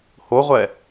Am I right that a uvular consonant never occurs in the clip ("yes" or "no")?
no